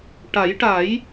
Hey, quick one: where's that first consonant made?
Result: retroflex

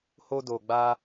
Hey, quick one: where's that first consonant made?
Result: throat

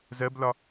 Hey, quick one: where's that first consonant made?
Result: tongue tip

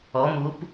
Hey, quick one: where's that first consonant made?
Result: lips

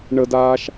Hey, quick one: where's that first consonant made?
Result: retroflex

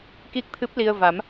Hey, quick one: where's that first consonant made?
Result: velum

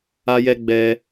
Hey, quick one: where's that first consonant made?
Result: palate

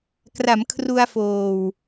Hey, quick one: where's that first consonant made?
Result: velum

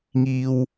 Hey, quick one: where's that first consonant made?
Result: velum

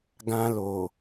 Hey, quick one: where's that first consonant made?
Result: velum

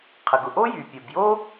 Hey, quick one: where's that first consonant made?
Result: uvula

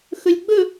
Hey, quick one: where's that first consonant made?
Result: velum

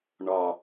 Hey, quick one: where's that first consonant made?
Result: retroflex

